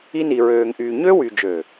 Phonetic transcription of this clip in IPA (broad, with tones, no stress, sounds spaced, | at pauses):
i˦ n i˨ ɹ øː˨ ŋ ʔ yː˨ ɲ ø˦ w y˨ d͡ʒ ø˨